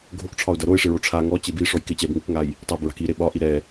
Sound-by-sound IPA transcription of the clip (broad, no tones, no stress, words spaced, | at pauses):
ɡʱokʈ͡ʂʰɒʊ̯dɐ ɾoɪ̯ʂɪɹo ʈ͡ʂʰa ŋɔt͡ɕe biʂɔj kɪ t͡ɕɛb ŋɪkŋaj | tˤabɹa̤k iɾe ɓɒʔi ɾɛ